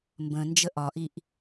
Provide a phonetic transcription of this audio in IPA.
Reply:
mbə̃nd͡ʒə ʔɒʔiʔ

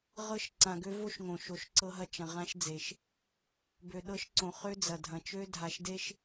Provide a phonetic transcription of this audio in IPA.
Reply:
ʁɤ˦ʃ ǀã˨ɡø˦vo˦ʃŋõ˨ ʃo˨ʃǀɤ˦ɦɐ˦ t͡ʃɐ̃˨ ʁã˦ʃ d͡ze˨ʃ | bø˨ɗɤ˦ʃǀõ˨ χø˦d͡zɐ˨dʱɐ̃˨t͡ʃø˦ dʱa˨ʃde˦ʃ

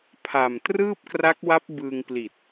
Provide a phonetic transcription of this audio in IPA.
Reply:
pʰa˨˩m trɯː˥˩p̚kra˦˥k̚wa˦˥p̚ bɯː˧ŋpli˨˩t̚

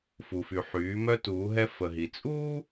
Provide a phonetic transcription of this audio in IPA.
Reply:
fu˩fy˩ħyː˩˧ mœ˧tuː˩˧ɦɛ˧ fə˩ɦi˩ t͡sʼuː˥

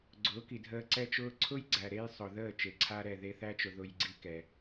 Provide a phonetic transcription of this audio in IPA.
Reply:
ɡ͡ǀʊː˨˦ki˨ dʱəː˧ ǀɛ˦t͡ʃʊː˦ ǀʰʊ˦jɡ͡ǀæ˨ɾe˧j sˤʊ˨ðəː˦˨ t͡ʃe˨ǀʰa˦ɾɛ˦˨ ðe˧θæ˦t͡ʃʊ˨ ðʊ˧jɡ͡ǀi˦kɛ˨

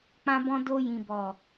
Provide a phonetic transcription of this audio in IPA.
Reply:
k͡pã˧bɔ̃˧ do˧ jĩ˨bɔ˨

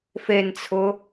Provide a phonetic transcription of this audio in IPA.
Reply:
fent͡sʰʊ

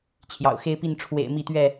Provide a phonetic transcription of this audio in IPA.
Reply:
t͡ɕʰjɑ̰˨˩ʊ̯xe˦ɪ̯pi˥˨n ʈ͡ʂʰwḛ˨˩ɪ̯ mi˥˨t̪ɥɛ˥˨

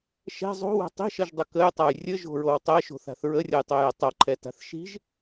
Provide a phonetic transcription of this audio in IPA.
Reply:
ʃɛ̤ zˤo̤wɛ̤ tˤi̤ʃʌʒdˤə kəjtˤaj rʲəʒo̤ɹow tˤɛʃo̤θa̤θ ɹərʲʌjtˤojɛ tˤʌǃʰɛta̤θ ʃi̤ʒ

